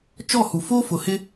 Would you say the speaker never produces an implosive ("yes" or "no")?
yes